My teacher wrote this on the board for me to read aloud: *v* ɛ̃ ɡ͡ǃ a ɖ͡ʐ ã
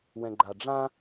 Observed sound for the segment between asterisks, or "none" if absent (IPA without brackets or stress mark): w